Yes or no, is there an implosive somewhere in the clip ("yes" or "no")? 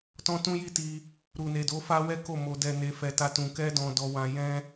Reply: no